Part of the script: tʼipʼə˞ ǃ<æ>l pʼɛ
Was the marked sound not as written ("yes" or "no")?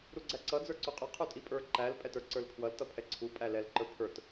no